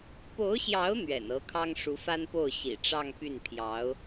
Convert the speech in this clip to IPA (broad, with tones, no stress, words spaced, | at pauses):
po˧˥ʊ̯ɕjɑ˧˥ʊ̯ n̪ɥɛ̰˨˩nɤ˧˥kʰɑ˥ŋ ʂu˧˥fa˥npo˥˩ʊ̯ ɕḭ˨˩ʈ͡ʂɑ˥˧ŋpy˥˩n pʰjɑ˧˥ʊ̯